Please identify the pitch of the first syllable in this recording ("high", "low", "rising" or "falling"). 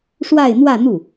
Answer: falling